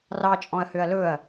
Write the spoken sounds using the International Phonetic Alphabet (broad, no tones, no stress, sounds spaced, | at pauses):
r ɑ t͡ʃʼ ɔ̃ ɐ̯ h ø ɐ̯ l ɵ ɐ̯